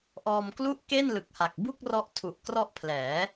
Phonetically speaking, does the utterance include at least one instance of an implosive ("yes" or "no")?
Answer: no